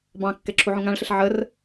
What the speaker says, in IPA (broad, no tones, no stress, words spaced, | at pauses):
bɑ̃kːɛ ǁʰuʕũŋãɭɬəɬ ʕər